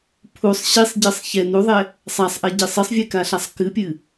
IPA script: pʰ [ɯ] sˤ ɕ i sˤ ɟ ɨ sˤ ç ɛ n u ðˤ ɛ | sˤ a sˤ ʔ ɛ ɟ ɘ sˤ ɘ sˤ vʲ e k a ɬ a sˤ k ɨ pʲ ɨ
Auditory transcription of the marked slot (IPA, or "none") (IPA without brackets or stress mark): u